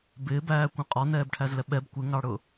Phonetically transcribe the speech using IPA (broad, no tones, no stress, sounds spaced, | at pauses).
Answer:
b ɪː b æː kʷ ɛ̃ qʼ ɔ n ɛː b ʈʰ æ z l ɛ ɓ ɛ b kʷ ɪ ŋ ɑ ɽ ʊ